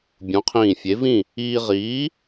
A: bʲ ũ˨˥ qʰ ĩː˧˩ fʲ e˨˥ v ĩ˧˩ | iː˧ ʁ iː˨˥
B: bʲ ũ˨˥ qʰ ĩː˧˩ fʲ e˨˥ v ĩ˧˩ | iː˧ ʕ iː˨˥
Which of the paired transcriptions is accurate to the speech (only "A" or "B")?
A